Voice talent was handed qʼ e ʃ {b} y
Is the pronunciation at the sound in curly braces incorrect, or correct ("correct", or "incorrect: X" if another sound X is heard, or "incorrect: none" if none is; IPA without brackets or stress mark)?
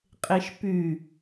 incorrect: p